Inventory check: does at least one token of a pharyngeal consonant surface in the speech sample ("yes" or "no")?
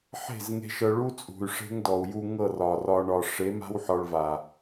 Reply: yes